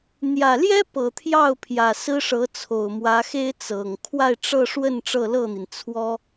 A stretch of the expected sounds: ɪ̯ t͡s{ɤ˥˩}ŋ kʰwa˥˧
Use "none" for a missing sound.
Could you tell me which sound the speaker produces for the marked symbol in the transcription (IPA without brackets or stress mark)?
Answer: ɤ˨˩